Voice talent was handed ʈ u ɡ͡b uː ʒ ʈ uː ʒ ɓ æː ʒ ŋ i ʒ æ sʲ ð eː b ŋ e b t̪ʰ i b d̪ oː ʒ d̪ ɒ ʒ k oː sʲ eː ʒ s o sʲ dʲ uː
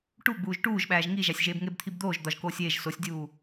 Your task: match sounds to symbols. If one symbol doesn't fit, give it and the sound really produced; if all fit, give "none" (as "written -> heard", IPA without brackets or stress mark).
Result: ð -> ʒ